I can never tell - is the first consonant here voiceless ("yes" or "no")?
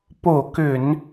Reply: yes